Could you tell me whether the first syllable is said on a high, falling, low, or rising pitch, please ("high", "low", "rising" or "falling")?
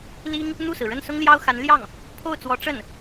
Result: high